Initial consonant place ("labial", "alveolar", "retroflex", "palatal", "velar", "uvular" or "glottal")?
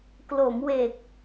velar